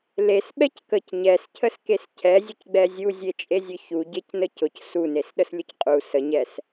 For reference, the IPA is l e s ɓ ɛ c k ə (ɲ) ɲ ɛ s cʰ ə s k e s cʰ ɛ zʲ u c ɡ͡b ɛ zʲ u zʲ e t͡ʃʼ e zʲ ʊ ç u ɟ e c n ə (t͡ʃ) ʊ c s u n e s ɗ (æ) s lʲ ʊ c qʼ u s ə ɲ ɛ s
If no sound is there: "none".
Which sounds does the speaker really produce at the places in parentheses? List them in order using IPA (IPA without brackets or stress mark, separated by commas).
c, c, ə